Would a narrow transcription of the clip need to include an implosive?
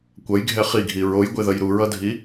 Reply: no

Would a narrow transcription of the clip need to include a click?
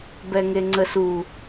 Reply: yes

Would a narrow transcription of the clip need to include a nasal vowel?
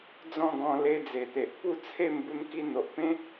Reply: yes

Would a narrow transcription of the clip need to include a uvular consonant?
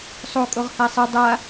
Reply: yes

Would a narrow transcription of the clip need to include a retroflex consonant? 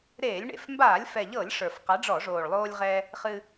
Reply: yes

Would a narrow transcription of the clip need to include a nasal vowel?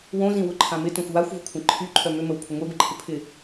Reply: yes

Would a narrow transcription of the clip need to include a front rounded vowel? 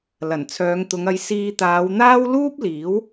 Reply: yes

